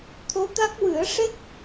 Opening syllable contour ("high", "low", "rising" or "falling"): rising